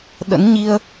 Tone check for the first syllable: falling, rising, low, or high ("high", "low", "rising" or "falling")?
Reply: rising